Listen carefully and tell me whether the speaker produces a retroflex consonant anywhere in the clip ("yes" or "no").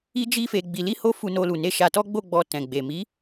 no